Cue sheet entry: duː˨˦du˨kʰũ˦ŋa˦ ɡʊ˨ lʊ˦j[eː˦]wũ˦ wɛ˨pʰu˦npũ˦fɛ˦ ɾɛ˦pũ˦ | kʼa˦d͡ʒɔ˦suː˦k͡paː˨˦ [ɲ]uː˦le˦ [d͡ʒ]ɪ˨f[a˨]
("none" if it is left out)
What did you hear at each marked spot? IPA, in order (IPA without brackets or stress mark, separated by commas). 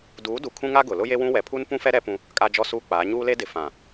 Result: e˦, ɲ, d, ã˨